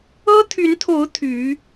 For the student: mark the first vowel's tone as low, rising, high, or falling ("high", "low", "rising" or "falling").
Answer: high